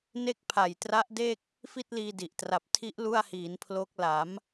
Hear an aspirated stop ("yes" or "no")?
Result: yes